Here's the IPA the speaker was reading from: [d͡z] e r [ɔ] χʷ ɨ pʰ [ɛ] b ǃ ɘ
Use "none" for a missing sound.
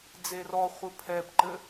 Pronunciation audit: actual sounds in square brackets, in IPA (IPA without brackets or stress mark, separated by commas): d͡z, ɔ, ɛ